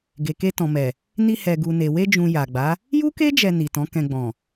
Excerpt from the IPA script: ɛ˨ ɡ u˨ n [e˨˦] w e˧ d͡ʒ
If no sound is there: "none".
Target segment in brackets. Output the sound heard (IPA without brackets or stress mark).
e˨